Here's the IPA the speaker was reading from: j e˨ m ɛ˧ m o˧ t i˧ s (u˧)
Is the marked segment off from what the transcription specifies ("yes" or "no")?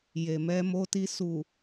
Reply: yes